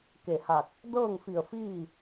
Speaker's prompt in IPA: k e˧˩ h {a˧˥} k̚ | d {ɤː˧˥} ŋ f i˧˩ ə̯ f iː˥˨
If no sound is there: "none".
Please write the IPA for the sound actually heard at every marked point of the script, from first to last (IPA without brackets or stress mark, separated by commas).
a˧˩, ɤː˥˨